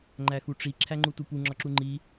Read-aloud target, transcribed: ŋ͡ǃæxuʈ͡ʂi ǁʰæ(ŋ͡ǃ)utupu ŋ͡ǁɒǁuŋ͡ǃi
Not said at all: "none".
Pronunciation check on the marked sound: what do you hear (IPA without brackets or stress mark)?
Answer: ŋ͡ǃ